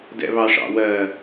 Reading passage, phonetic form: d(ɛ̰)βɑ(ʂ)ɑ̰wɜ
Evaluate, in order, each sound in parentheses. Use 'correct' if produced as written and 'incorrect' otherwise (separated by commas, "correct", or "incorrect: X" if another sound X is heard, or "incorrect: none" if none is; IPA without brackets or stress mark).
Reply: correct, correct